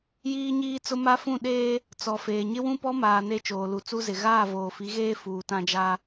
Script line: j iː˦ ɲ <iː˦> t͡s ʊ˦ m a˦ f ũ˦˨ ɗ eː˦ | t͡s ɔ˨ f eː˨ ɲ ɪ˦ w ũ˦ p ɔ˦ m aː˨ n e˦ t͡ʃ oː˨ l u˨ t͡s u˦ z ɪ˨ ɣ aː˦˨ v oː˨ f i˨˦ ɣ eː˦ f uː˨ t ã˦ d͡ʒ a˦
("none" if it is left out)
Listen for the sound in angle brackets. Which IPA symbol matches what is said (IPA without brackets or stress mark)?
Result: iː˦